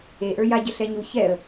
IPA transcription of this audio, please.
eʔə˞ ja ɟəɬɛɲu çɛə̯

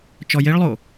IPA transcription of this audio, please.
t͡ʃɔjeɭlˠo

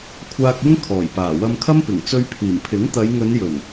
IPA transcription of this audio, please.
kʷʰaː˧k̚ɪ˥ŋ kʰɔː˨˩jpaː˨˩ wɐ˧mkʰɐ˥mpɪ˨˩ŋ t͡sɵ˧ɥpʰiː˨˩mpʰɪ˨˥ŋ t̪ɐ˨˧jŋɵ˨˧njɵ˨˩n

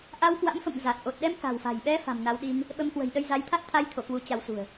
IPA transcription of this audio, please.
ʔa˧wkwa̰˧˥mfə̰˧˨m za˨˩t̚ ʔo˨˩t̚ɗɛ˧m ka̤˨˩wfa̤˨˩jɓɛ˧ fa̤˨˩mna˨˦w ɗi˧ŋ | ɓə˧mkwə̤˨˩jɗə˧jza˨˦j t̪ʰa˦˥t̚t̪ʰa˧jt̪ʰo˧˩ kwu˨˦t͡ɕa˨˦wsṳ˨˩ə̯

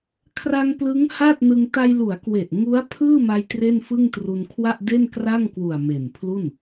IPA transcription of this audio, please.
kʰra˧ŋ plɯ˦˥ŋha˥˩t̚nɯ˧ŋ ta˧jlu˩˦a̯kwe˨˩ʔ ŋu˦˥a̯ pʰɯː˥˩ma˧j tre˥˩nfɯ˥˩ŋtru˧n kʰwa˥˩ʔde˥˩nkra˥˩ŋ kwu˨˩a̯ me˨˩npʰlu˥˩n

